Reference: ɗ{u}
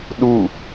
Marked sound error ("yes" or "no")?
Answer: no